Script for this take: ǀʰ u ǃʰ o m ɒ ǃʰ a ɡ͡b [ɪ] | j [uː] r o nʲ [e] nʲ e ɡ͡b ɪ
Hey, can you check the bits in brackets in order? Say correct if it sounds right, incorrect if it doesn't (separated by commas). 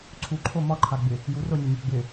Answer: correct, incorrect, correct